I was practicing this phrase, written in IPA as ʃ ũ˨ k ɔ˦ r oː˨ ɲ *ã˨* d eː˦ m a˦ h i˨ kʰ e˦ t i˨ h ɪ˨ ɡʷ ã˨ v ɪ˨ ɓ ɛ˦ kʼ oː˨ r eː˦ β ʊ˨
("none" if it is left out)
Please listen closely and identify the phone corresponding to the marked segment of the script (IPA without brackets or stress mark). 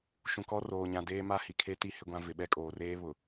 ã˨